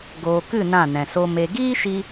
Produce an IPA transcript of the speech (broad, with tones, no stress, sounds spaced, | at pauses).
ɡ oː˨ k ɨ˦˨ n ã˦˨ n ɛ̃˨ s o˧ m e˨ ɡ iː˦ ʃ i˧